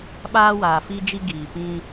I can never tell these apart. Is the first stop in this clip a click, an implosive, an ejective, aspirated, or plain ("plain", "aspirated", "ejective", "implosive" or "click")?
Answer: implosive